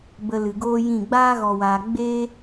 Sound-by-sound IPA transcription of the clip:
b ə˧ l ɨ˨ ɡ oː˦ j ĩ˦˨ ɡ͡b aː˦ ɣ ɔ˨ w aː˨ ɡ͡b e˦

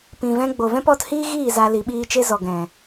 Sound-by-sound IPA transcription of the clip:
p ĩ˨ v ɛ̃˦ ɡ͡b o˨ v ɛ̃˦ p ɔ˨˦ t h iː˦ ɣ iː˦˨ z a˧ l i˨˦ ɓ iː˦ t͡ʃ e˦ z ɔ˨ ɡ ɛ̃˨

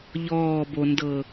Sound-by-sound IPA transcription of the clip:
ʎ ɔː b o n d ɤ

